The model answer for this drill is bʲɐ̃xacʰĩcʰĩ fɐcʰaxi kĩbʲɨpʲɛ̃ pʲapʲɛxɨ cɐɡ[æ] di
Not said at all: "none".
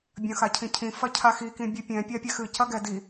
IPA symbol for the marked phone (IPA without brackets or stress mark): ɛ